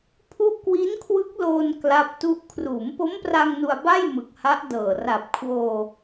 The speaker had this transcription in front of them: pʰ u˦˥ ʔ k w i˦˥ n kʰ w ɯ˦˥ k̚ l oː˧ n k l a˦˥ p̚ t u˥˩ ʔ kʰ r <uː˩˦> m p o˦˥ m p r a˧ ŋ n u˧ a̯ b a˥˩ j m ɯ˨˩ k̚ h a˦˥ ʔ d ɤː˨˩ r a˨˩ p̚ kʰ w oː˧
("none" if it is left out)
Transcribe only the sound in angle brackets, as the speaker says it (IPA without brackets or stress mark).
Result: uː˩˦